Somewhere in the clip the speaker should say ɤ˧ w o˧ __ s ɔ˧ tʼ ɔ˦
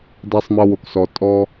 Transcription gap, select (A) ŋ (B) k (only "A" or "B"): B